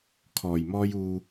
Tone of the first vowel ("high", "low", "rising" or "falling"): low